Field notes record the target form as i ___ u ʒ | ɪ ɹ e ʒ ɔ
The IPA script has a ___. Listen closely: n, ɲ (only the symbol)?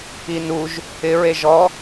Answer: n